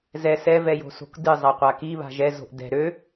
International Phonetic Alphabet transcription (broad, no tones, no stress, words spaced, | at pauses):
zɛ sɛ vɛjo̤so̤kdɨ zˤaqʷaki βa̤ʒɛ zo̤ʔdɛ̤ ɾø